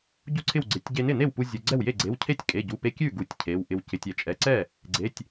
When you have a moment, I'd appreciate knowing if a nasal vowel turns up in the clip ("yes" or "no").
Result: no